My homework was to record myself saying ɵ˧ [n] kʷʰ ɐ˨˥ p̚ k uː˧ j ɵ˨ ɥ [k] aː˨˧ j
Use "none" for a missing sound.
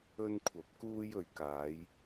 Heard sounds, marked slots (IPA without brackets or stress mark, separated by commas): n, k